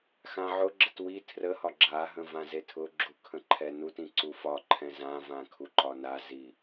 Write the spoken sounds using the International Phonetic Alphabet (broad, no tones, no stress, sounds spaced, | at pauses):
x ã ʕ ʊ ɡ͡ǁ ə t w i tʰ r ə h ɒ ɡ͡ǁ a ɦ ə̃ v ã z e tʰ ʊ ɡ͡ǁ u kʰ ə̃ ǃʰ ɛ n u t ĩ ǀ u f ɒ ǃʰ ɛ̃ z ã v ã kʰ u ǃ ɒ n a z i